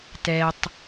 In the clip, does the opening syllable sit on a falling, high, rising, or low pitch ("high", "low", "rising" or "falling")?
low